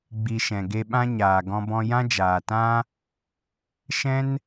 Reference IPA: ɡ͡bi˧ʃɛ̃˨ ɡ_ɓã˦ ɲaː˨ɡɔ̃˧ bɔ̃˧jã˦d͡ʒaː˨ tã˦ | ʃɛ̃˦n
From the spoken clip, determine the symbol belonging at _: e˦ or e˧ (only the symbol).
e˧